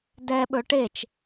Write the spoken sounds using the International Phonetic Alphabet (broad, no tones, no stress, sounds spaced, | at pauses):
d ɛ ɓ ɵ ʈ e t͡ʃ